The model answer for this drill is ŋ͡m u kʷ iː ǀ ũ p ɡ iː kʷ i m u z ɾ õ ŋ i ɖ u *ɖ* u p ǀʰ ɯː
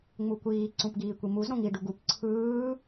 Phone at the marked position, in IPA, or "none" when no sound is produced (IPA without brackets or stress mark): ɡ